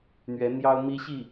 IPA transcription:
n̪ɥɛ˧˥n̪jɑ˥ʊ̯mi˥ɕi˥˩

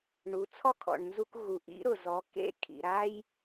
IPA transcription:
ɳu˩˧t͡sʰɔ˥kʰɔ̰˩ɳnzu˧k ɣu˩ ʔḭ˧˥ɾʊ˩zɔ˩˧ kḛ˧kʰḭ˩ɾa˧j

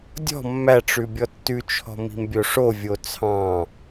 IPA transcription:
dʲɔ̤ mːæʈ͡ʂʉ bʲɔtːʉt͡ʃʰɔ̤ mi̤mbʲoʂovʲo t͡sʰɑ̃

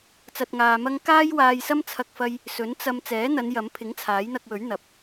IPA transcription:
t͡sɐ˧t̚ŋaː˧mɐ˥ŋ kaː˥jwaː˧jsɐ˥m t͡sʰɐ˥k̚fɐ˥j | sɵ˨˥n t͡sɐ˧m t͡sɛː˨˥n̪ɐ˨˧n jɐ˨˧mpʰɪ˨˥ŋ t͡sʰaː˨˥jn̪ɐ˧k̚wɵ˨˥ɥ n̪ɐ˨˥p̚

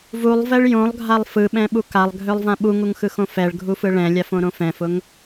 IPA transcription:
vulˠvɛɭ jõlˠɡʱalˠ fɯɓɛ̃ɓu kalˠɡʱølˠvã ɓuŋuŋxɯxõ fɛɭɡʱufɯ ɭɛ̃lʲafõɾõ fɛ̃fʊŋ

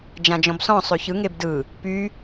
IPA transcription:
d͡ʒãd͡ʒɔ̃bsɔ̃ sˤøçɯ ŋebdɯ | py

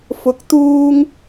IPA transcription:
fʊ˨k̚t̪uː˧ŋ

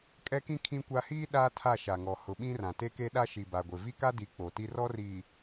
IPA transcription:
kʼɛ˦kĩ˦ kʰĩ˦kʷa˦ hiː˦ ɗaː˦tʰa˦˨ʃa˨ŋɔ˨ hʊ˨ ɓĩ˦rã˨ te˦ke˦ ɗa˦ʃi˨ba˨ɡʷɪ˨ vi˦ka˦di˨˦ k͡po˨ti˦ rɔ˦ riː˨

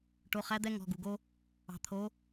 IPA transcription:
ʈo˩˧˩χæ˨˦d̪ɛ˨˦ ŋɔ̤˩˧˩ɡu˩ɡo˦ | ɑ̤˩t̪ʰo˨˦

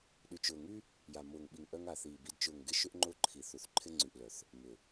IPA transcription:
ɗy˨t͡ʃʊː˨ŋy˦ | ja˨mʊː˨ŋɓi˨ŋʔœ˧ŋ a˨θiː˨bi˧d t͡ʃʊː˨ŋɡɪ˧ ʃʏ˦ʔŋ͡ǃʊ˦˨ǃʰi˨θu˨θ ǃʰɪ˧ŋ͡ǀy˨ʔlœ˨θ | mʏ˨

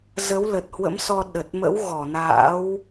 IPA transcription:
zə˨˦wlə˨˩t̚hwə̰˧˥msɔ˧ ɗə˨˩t̚mə̰˧˥w ɣɔ˧˩na̰ː˧˥w

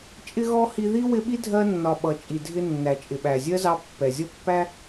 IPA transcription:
t͡ʃʼɪ˥ɣɔ˥hi˦ ði˥wɪ˦ɓi˥ dʱɜ˦ nːɒ˨ɓʌ˩ t͡ʃʼi˩dʱɪ˦nːæ˩t͡ʃʼɪ˩ ɓæ˩zʲɜ˥zɑ˦ pːɛ˩zʲʌ˥pːæ˥

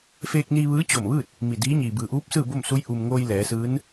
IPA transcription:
feː˧k̚ni˧ ʋɯː˧˥t͡ɕo˧˩mʋɯː˥˨t̚ | mi˧˩diː˧˥ɲiː˩ bɯː˩ʔuː˧˥p̚ sɯː˥˨bo˥˨msu˧˥j ʔu˩mŋoː˧j lɛː˩˧sɯː˧˥n

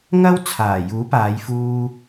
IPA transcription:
ŋɐ˥w t͡sʰaː˨˩juː˨˥paː˨˧j fuː˧

